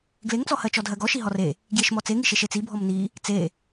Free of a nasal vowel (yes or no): yes